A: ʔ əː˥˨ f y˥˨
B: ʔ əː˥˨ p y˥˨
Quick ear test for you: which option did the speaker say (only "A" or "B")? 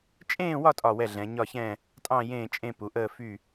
A